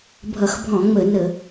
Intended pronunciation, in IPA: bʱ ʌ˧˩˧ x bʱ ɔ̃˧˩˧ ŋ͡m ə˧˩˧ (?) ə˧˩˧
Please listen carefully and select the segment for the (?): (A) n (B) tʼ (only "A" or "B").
A